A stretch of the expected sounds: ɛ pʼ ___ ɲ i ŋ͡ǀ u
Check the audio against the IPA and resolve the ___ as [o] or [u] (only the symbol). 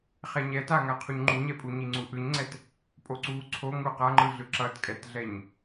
u